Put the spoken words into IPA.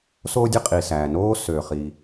s oː˥ dʲ e˥ qʼ i˩ s æː˩ n oː˥ s øː˩ χ i˩

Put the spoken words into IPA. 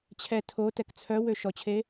t͡ɕʰ ɛ tʰ o t ɛ k t͡sʰ œ w ø ʃ ɔ t͡ɕʰ e

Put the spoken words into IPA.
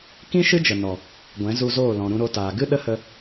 k ĩ˦ ʃ ɨ˦ d͡ʒ ə˨ n ɔ˨ | ɡʷ ɛ̃˨˦ z u˧ z oː˦˨ l ɔ̃˨ ɾ ũ˧ ɾ o˧ t aː˨ ɡ ɨ˦ ɗ ə˦ h ə˧

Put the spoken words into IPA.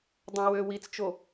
dˤ õ w ø w i t͡s t͡ʃ o

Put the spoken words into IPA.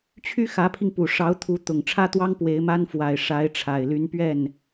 t͡ɕʰ y˥ x ä˧˥ pʰ i˧ ŋ p u˨˩ ʂ ɑ˧˥ ʊ̯ t̪ʰ u˧˥ t̪ ʊ˨˩ ŋ ʈ͡ʂʰ ä˥ t̪ w ɑ˥ ŋ p w e˧˥ ɪ̯ m a˥ n f w a˨˩ ɪ̯ ʂ a˧˥ ɪ̯ ʈ͡ʂʰ a˨˩ ɪ̯ l y˧˥ n p ɥ ɛ˥˩ n

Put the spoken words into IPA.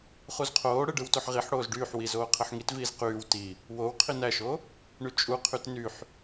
χ u z qʰ oː ɽ ɯ ɖ ɯ w t o ħ ʁ i ħ ɽ oː z ɖ yː ħ w i z oː qʰ ɯ ħ ŋ i t v iː z q yː w t i | w o w qʰ i n æ ʃ o | ɳ y t͡ʃʼ u qʰ y t n y ħ

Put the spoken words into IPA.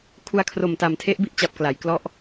kʰ u˧ a̯ kʰ r o˨˩ m t a˨˩ m tʰ e˦˥ ʔ b i˥˩ ʔ t͡ɕ a˨˩ p̚ k l a˩˦ j k l ɔ˦˥ ʔ

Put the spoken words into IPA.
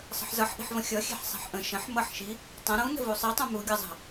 sˤ ə̤ ħ z ʌ ħ ʔ i̤ ħ v ə̃ xʲ ʌ xʲ e̤ ħ sˤ e̤ ħ ʔ ə̃ ʃ ə̃ ħ m ʌ ħ ʃ i | tˤ ə̃ ɾ ũ n ə̤ v u sˤ i tˤ ũ m u ɡʲ ʌ zˤ ə̤

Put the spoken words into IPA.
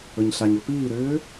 ɵ ɲ ɬ a ɲ ɵ p iː ɾ ʏː

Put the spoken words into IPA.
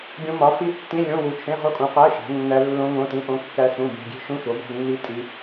ɡʲ õ˦˥ m ɒ˨˥ f i˦˥ tː ĩ˧˥˧ lʲ õ˧˥˧ w u˨˥ t͡ʃʰ ẽ˧˥˧ ʁ o˦˥ kʼ ũ˨˥ q æ˧˥˧ ʃ æ̤˨˥ nː æ˦˥ lː õ˦˥ ŋ õ˧˥˧ t ĩ˧˥˧ ʔ õ˦˥ kː æ˦˥ s ũ˧˥˧ b e̤˧˥˧ ɡʲ e̤˦˥ ʃ ũ˧˥˧ ʃ o˨˥ b æ̤˧˥˧ nː i˦˥ tʼ i˦˥

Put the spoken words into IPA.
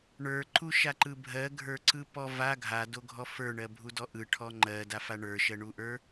ɳ ə˞ ǃ u ʃ a ǃ ɯ bʱ ɜ ɡʱ ə˞ ǀ ɯ p ɔ v a ɡʱ a d o ɡʱ ɔ f ə˞ ɳ ɜ bʱ u d ɔ ʔ ɯ ʈʰ ɔ ŋ͡ǃ ɜ d a f a ɳ ə˞ ʃ ɜ ɳ u ʔ ə˞

